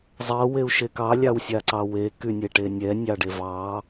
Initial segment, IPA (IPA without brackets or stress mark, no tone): zˤ